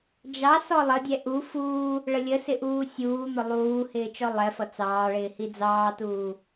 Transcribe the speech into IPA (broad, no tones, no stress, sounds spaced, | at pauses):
d͡ʒ ɑ s ɔ lˠ ə dʲ ɛ ʔ u f uː | ɭ ə lʲ ə s ɪ ʔ uː sʲ uː n̪ ʊ lˠ uː h ɪː t͡ʃ ɔ lˠ ɛ f ʌ t͡s ɑː ɭ ɪː h i d͡z ɑː t uː